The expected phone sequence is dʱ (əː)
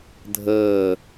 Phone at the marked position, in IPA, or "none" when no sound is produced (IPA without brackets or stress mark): əː